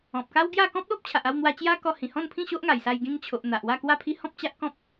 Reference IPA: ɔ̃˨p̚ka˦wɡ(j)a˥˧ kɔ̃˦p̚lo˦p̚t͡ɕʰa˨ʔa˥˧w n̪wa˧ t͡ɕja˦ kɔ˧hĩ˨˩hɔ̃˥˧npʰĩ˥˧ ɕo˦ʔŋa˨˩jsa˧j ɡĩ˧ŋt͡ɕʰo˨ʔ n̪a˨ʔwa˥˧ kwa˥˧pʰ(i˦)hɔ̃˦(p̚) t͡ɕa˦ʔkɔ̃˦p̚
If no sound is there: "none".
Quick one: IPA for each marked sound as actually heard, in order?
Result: j, i˦, p̚

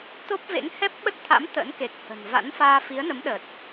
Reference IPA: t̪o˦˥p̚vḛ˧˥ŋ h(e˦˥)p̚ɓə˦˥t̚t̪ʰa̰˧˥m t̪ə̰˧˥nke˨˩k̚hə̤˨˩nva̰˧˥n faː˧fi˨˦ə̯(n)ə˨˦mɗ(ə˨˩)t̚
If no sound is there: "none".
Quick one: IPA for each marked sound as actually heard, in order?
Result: ɛ˦˥, n, ə˨˩

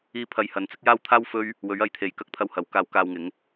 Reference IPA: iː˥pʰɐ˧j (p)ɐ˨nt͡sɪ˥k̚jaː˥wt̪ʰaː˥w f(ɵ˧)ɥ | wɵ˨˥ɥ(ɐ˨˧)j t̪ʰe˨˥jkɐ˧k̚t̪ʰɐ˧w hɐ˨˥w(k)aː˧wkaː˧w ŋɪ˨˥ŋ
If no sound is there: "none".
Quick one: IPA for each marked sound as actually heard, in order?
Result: h, ɵ˥, ɐ˨˧, k

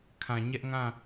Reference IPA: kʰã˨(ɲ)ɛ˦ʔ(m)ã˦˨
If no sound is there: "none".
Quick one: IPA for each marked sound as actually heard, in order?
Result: ɲ, ŋ

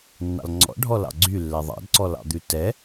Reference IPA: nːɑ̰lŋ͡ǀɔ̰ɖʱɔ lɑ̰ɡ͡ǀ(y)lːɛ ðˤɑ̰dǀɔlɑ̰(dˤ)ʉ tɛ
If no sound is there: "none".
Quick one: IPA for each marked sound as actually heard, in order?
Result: y, d̪

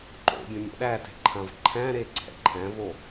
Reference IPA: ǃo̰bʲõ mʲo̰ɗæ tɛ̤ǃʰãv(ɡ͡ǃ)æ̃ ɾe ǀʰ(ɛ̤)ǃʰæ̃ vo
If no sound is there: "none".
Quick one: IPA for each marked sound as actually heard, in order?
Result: ǃʰ, ɛ̰

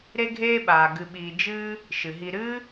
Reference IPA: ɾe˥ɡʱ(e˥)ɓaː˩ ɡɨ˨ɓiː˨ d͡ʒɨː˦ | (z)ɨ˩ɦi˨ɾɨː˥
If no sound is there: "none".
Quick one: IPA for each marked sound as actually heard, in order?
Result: eː˥, ʃ

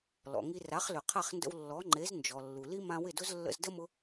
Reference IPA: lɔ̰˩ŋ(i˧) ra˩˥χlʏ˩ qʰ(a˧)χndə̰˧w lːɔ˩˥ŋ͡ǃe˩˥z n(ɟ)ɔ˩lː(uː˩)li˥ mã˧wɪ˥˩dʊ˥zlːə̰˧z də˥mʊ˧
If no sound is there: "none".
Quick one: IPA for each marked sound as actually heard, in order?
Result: i˧, a˥˩, d͡ʒ, u˩

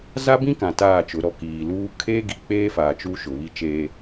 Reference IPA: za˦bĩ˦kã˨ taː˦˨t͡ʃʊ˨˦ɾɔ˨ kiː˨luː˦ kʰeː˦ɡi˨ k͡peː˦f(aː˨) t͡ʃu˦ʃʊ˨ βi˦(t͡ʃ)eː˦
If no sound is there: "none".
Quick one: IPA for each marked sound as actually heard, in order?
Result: aː˨, t͡ʃ

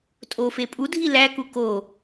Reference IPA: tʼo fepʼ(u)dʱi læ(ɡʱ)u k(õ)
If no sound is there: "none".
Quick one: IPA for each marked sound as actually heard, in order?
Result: u, k, o

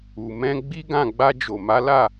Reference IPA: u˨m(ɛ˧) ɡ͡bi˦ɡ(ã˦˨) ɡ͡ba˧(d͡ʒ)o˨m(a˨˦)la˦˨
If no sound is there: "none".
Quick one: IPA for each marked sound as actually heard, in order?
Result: ɛ̃˧, ã˦˨, d͡ʒ, a˨˦

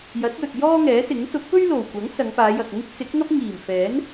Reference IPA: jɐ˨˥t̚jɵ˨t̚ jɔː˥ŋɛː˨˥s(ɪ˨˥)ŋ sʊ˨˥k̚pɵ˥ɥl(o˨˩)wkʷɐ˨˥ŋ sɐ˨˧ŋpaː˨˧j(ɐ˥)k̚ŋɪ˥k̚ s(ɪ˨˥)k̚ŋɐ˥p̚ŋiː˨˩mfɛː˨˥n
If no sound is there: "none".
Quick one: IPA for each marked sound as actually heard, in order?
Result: ɪ˨˥, o˨˩, ɐ˨, ɪ˨˥

